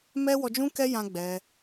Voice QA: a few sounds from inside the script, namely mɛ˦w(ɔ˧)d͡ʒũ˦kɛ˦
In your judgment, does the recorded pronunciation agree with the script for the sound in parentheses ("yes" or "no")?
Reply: yes